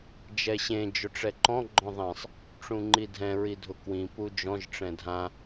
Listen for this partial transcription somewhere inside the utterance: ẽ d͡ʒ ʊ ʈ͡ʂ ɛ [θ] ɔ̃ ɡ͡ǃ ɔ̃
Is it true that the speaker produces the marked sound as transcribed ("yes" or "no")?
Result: no